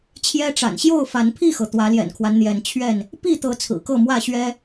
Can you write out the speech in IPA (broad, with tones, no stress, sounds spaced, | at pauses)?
t͡ɕʰ j ɛ˦ ʈ͡ʂ a̰˨˩ n ɕ j o˥˨ ʊ̯ f a˨˦ n pʰ i˥˨ x ɤ˩ t̪ w ä˨˦ l j ɛ̰˨˩ n kʰ w a˦ n n̪ j ɛ˨˦ n t͡ɕʰ ɥ ɛ˥˨ n | p i˥˨ t̪ ɤ˨˦ t͡sʰ ɹ̩˨˩ k ɤ˥˨ m w ä˥˨ ɕ ɥ ɛ˦